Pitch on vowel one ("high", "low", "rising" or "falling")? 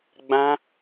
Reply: high